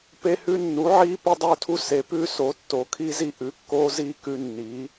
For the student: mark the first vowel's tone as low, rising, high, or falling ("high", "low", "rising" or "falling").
high